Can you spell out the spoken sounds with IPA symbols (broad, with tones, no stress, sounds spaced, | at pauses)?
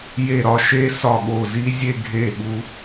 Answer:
j e˧˩ ɾ ɒ˥˧ ʃ e˦˥ s ɒ˧˩ ɠ o˧˩ z i˦˥ zʲ e˥˧ ɡʱ e˧˩ ɠ u˧